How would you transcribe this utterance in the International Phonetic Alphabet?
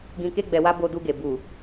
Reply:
ɡ ĩ˧ k e˦ ɡ͡b ɛ˧ w a˦ b o˧ d u˧ ɡ e˨ b u˨

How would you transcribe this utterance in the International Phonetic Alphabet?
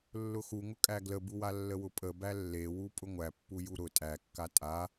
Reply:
lː ʊ x u ŋ ʊ kʼ æ ɡ l ə b u w a lː ə w ʊ pʼ ə b æ lː e w u pʼ ʊ ŋʷ æ pː u j u ɾ ʊ tʼ æ kː a tʼ a

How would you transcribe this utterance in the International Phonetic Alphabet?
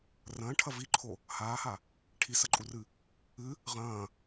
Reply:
r ɐ̃ː ʈʰ ɐ v i ǃʰ o | h aː h a | ʈʰ i s ɐ ǃʼ u r ɨ | ɨ | ʁ ɐ̃ː

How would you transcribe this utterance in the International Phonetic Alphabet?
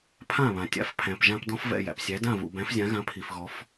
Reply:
pʰ ã˥˩ β ã˩ tʲ a̰˧ f pʰ æ̃˩ p ʒ ã˧ p d ɔ̃˥ f v ɛ̰˥˩ j æ̰˩ p sʲ æ˩˥ d ã˥˩ v ṵ˩ b æ̃˩˥ f zʲ ã˩˥ ɣ ã˩˥ pʰ i˩ f ɣ ɔ˩˥ f

